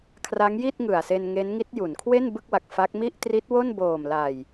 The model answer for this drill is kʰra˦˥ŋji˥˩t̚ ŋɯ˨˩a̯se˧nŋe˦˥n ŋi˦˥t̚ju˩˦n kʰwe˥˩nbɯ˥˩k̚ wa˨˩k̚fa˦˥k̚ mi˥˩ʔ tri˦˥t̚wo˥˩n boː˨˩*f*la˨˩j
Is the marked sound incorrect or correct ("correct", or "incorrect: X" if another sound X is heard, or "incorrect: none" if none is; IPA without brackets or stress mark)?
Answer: incorrect: m